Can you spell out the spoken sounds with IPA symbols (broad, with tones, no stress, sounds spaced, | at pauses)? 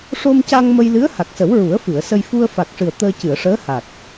ʂ o˧ m c a˧ ŋ m ə˧ j l ɨ˧˥ ə̯ h a˨˩ k̚ s ə˨˩˦ w ɹ u˨˩˦ ə̯ f ɨ˨˩˨ ə̯ s ə˧ j f u˧ ə̯ f a˨˩ k̚ ʂ ɨ˨˩ ə̯ t̪ əː˧ c ɨ˨˩˨ ə̯ ʂ əː˧˥ h a˨˩ k̚